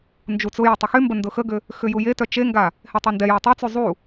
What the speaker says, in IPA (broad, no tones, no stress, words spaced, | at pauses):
nd͡ʒut͡sʊjə tˤʊxymbə ndʊxəɡʏ | xʏjujetœ t͡ʃeŋɡa | hetˤendɛja tˤut͡sy zˤu